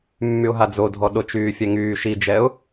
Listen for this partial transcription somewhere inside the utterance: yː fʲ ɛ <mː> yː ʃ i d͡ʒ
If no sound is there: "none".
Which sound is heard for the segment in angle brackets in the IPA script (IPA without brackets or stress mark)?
ŋ